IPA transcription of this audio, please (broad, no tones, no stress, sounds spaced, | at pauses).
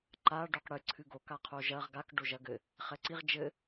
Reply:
ǃ a ɖ o q ɽ ɨ ǀʰ ɨ ɡ o k a qʰ o ʒ ɐ ʁ ɡ a k ɖ o ʒ ɐ ɡ ɘ | χ ɛ ǀ i ʁ d͡ʒ ɘ